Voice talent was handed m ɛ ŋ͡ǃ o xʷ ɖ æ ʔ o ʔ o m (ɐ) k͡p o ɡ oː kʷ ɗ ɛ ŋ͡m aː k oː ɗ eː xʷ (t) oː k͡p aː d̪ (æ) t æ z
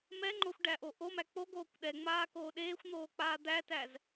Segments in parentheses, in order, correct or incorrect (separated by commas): incorrect, incorrect, correct